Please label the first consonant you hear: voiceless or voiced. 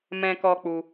voiced